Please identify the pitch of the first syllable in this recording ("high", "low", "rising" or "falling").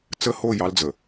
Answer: high